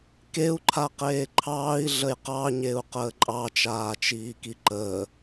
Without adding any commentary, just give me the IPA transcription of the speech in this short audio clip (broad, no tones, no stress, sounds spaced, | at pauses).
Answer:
k e u̯ ǃʰ a q eː ǃʰ ɑː i̯ ɮ ə j q ɑ ɲ e u̯ q əː ǃʼ ɑ t͡ʃ aː t͡ʃ iː k i ǃ əː